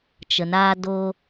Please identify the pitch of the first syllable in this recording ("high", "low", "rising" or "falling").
low